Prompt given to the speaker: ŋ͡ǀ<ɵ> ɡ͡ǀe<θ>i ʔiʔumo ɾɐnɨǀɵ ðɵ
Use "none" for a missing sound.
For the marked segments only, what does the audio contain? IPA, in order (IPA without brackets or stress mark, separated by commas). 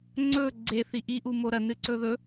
ɵ, θ